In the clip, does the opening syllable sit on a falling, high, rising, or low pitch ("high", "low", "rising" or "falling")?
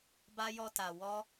high